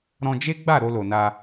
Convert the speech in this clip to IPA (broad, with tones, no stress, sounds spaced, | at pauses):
ɾ ɔ̃˧ d͡ʒ e˦ ɡ͡b a˦˨ ɾ o˧ l o˨ n a˧